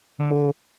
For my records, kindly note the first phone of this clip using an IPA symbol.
m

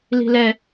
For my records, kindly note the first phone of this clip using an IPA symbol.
l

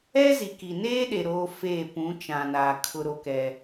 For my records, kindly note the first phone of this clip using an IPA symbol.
ɛ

